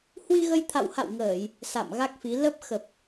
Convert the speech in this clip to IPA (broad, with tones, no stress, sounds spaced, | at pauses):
h w i˧ ɣ ə˧ j t̪ʰ a̰˧˨ w h a̰˧˨ w ŋ əː˧˩˨ j | s a̰˧˨ m ɣ a˦˥ k̚ f i˨˦ l ə˦˥ p̚ x ə˨˩ p̚